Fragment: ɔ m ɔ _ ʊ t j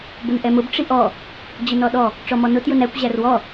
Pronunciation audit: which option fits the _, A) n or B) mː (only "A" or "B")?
A